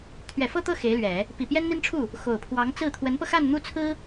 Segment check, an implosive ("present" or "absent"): absent